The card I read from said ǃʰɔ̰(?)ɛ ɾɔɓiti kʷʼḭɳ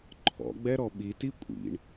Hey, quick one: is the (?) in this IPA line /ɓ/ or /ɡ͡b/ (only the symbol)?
ɡ͡b